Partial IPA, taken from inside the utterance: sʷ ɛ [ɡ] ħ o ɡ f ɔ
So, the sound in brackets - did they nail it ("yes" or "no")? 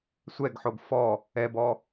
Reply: yes